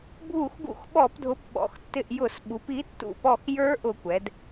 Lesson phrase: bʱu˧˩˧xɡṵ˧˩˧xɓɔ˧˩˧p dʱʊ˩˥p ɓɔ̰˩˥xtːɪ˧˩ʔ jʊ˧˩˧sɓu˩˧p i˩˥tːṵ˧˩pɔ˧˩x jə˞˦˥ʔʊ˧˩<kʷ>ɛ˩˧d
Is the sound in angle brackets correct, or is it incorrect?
correct